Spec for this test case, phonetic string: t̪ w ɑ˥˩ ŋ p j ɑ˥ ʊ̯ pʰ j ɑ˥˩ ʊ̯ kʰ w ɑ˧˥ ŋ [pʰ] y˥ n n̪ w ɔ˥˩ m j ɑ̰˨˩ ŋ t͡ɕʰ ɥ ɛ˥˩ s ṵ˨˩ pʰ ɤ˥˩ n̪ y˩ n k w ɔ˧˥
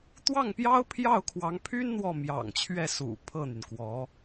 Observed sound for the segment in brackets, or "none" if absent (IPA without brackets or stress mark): pʰ